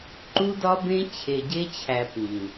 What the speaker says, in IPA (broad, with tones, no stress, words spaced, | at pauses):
ǃu˦dɒ˦bẽ˦ t͡ɕʰe˨ɟe˧t͡ɕʰæ˨ pĩ˨